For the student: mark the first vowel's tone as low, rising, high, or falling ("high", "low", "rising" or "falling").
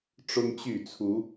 high